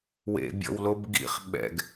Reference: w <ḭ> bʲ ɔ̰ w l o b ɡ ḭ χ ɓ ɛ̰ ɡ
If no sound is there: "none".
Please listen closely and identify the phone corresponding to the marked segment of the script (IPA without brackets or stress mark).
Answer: ḛ